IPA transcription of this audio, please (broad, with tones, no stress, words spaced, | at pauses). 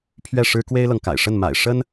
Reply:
pʰɥɛ˥˩ʂɻ̩˥ kwe˥ɪ̯lɤ˨ŋka̰˨˩ɪ̯ʂə˥˩n ma̰˨˩ɪ̯ ʂə˥n